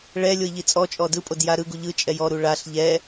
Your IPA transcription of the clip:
ɭ ɛ lʲ o i̯ ʎ i t͡sʼ ɔ t͡ʃʼ ɔ d ɯ pʼ o d j a ɾ ɯ ɡ u ʎ ɯ t͡ʃʼ ɛ j ɔ ɾ u ɭ a ɬ ʎ ɛ

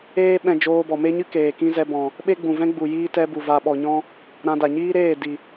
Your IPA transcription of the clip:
eː˦ ɓ ɛ̃˧ d͡ʒ oː˧ b ɔ˨ m e˦ ɲ ɨ˦ k eː˨ k ĩ˦ z ɛ˧ b ɔ̃˨ | ɓ e˦ ɡ͡b ũ˨ v ɛ̃˦ ɡ͡b u˨ j iː˦ t ɛ˧ b u˨ v a˨ ɓ ɔ˨ ɲ ɔ̃˧ | ɾ ã˧ d a˨ ɲ iː˦ ɾ eː˦˨ d i˨

